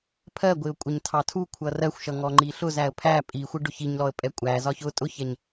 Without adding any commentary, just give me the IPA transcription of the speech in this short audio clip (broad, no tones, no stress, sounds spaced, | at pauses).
pʰ ɜ ɡʷ ɪ ʊ̯ kʷʼ ɪ ɲ tʰ ɑ tʰ u kʷʰ ʌ r ɜ xʷ ʃ ʌ ŋ ɔ ŋ͡ǃ i ɬ ʊ z æ ə̯ pʰ æ pʼ i xʷ ɪ ɖ ʊ ç i ɲ l ɔ ə̯ pʼ ɛ kʷʼ æ z ɒ ç ʊ tʼ ʊ ç ɛ ɲ